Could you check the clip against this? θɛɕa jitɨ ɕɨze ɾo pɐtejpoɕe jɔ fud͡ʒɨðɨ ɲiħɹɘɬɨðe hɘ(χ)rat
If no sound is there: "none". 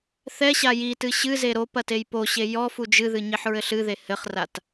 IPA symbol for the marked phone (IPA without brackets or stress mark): χ